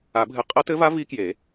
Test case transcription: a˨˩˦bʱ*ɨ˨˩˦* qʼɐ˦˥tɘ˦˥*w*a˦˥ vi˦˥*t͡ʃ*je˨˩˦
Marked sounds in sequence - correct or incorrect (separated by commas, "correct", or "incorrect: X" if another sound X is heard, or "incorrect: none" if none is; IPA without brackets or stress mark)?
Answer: correct, incorrect: v, incorrect: k